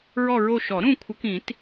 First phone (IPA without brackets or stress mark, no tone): ɹ